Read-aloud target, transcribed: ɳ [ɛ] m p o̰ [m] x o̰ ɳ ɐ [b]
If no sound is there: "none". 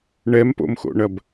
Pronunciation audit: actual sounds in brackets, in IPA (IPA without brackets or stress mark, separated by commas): ɛ, m, b